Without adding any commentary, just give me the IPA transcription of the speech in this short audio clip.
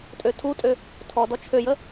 tʼ ø tʰ u tʼ ø | tʰ ɔ d ɔ t͡ʃʰ ø j ə

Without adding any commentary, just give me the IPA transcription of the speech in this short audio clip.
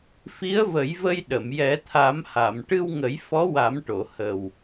f i˧˥ ə̯ v ə˨˩˦ j v ə˧ j ɗ ə˨˩˨ m j ɛ˨˩˦ t̪ʰ a˨˩˦ m h a˨˩˨ m ʈ ɨ˧ w ŋ ə˨˩˦ j f ɔ˧˥ w a˨˩˦ m ʈ o˨˩˨ h ə˨˩ w

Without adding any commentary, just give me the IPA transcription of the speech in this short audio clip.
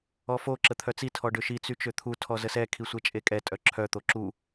ɔ f o ǁ ə t̪ʰ œ t͡s i tʰ ɔ ɖ ø ʃ i t͡s y t͡ʃ ø t̪ʰ u tʰ ɔ z ə s ɛ kʰ i sʷ ɛ t͡ʃʼ e kʼ ɛ tʼ œ ǁʰ œ t̪ o ǁ u

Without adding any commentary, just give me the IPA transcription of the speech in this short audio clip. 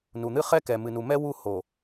n u˨ n̪ ɨ˦ χ ɛ˦ k ɛ˨ m ɨ˨ n u˨ m ɛ˦ w u˦˨ h o˨

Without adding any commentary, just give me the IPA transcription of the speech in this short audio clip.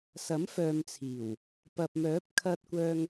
s ɐ˨˥ m f œː˨ m t͡sʰ iː˨˩ w | p ɐ˨ p̚ m œː˨˥ p̚ kʰ ɐ˧ t̚ kʷ œː˧ ŋ

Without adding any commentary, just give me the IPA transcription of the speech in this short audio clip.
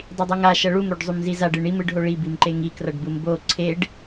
dˤ i dˤ u ŋ a ʃ ʌ ɭ u m ɾ o ɖ zˤ u m z i z a ɖ ɯ ɳ i m ɯ ɖ ɦ o ɭ i b i m ǃ e ŋ i k r ʌ ɖ b ɯ m b o ǀʰ e ɖ

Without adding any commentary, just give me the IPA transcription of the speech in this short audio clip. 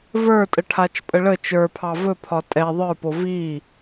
v ə˞ tʼ ə ʈʰ a t͡ʃ pʼ ə ɭ ə t͡ʃ ə˞ pʰ ɑ v ɵ pʰ ɒ tʼ ɛ ðˤ ə˞ p o v i

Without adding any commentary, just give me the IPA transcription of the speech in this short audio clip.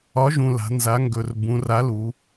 ɒ˨˥ ʒ ũ˨˩ l a̤˩˧ n z a˩˧ ŋ ɡ ɵ˨˩ r b ũ˩˧ r a˨˥ l u˩˧

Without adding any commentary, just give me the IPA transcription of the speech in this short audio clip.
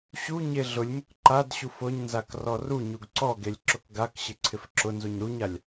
ɕ u ɲ e ɮ ʊ lʲ m ʊ k ǃ a d ɕ u f ʊ ɲ n z a k r ɔ r u ɲ u ɡ ǀ ɔ ɡ e lʲ ǁ ʊ k ɡ a k ɕ ɪ ǀʰ ɪ f ǁ ʊ n z u ɲ ɾ u ɲ a lʲ

